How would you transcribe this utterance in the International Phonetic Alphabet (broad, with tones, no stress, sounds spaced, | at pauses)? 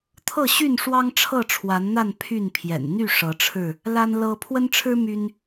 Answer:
t̪ʰ ɤ˥˨ ɕ y˥˨ n ʂ w ɑ˦ ŋ ʈ͡ʂʰ ɤ˥˨ ʈ͡ʂʰ w a˨˦ n n̪ a˥˨ n pʰ y˥˨ n pʰ j ɛ̰˨˩ n n̪ y˥˨ ʂ ɤ˨˦ ʈ͡ʂʰ ɻ̩˥˨ | l a˦ n l ɤ˦ pʰ w ə˦ n ʈ͡ʂʰ ɻ̩˦ m y˦ n